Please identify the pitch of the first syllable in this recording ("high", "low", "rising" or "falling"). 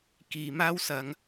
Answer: low